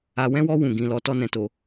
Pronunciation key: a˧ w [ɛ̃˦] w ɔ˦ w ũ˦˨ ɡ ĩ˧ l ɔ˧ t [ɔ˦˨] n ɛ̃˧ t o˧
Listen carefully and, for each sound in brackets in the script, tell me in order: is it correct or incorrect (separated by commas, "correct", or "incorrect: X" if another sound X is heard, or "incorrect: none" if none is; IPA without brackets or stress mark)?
correct, incorrect: ɔ˦